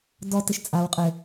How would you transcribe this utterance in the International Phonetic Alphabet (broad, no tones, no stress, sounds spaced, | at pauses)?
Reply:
d ɔ t ɘ ʃ t͡sʼ a w qʼ ɘ